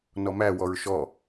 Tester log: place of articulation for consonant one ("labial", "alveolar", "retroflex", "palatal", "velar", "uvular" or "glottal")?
alveolar